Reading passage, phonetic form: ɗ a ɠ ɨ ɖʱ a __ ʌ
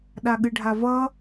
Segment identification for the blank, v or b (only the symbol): v